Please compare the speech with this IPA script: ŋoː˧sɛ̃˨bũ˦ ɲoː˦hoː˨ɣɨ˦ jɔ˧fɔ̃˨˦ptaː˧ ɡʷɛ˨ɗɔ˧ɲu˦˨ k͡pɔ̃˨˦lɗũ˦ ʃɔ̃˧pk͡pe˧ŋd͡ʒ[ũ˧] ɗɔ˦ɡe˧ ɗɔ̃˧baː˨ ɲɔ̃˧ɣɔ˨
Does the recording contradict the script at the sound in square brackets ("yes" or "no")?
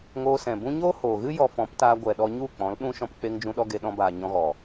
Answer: no